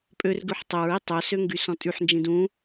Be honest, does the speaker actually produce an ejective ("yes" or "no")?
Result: yes